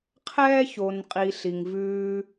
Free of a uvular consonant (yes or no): no